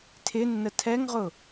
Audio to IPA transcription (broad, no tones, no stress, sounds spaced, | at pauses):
tʰ ɪ nː ə tʰ ɛ ŋ ʁ ʊ